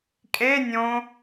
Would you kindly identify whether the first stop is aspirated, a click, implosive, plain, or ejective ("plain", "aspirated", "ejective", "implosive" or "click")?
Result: ejective